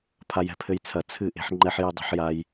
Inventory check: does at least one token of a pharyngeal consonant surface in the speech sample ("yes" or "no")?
yes